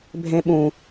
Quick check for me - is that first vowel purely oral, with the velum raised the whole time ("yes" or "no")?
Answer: no